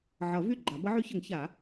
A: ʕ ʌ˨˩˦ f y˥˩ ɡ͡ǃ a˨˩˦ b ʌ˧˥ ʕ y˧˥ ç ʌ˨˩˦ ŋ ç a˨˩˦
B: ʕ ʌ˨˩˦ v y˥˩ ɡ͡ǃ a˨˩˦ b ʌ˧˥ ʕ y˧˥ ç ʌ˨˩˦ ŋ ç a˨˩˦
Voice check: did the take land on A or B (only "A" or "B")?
B